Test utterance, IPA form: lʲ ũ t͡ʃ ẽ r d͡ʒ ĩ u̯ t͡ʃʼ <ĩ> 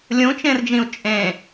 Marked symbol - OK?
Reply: no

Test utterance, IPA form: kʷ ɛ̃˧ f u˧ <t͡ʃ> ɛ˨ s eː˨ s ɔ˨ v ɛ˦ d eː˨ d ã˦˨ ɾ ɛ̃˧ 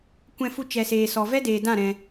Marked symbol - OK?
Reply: yes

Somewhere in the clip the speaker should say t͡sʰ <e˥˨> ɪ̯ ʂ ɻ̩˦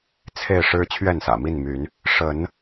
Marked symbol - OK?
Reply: yes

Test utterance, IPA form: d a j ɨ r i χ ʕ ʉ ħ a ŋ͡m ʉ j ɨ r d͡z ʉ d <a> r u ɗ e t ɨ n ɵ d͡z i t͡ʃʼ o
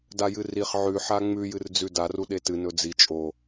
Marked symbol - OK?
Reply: yes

